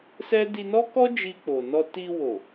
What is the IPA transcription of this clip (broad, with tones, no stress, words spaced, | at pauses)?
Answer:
sɛ˦ di˧nɔ˦kɔ˦ d͡ʒi˧k͡po˨nɔ˧ ti˧ wo˨